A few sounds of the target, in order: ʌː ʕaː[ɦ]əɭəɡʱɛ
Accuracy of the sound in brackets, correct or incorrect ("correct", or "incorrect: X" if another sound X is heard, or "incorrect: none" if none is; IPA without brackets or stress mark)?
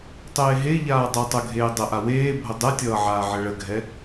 incorrect: ʕ